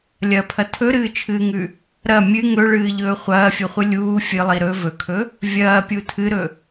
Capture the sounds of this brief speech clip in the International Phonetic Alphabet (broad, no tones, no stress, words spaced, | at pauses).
lʲɐpʰɐ tʰɵɾɨːt͡ʃʰɨːŋʉ | ɾɐ mʲɨ ŋɵɭɨːʎɵː χʷɐːfʲɵχʷɨ lʲuː fʲɨlˠi ɾɵ vɵkʰɵ | vʲɐːpʲu tʰɨɾɵ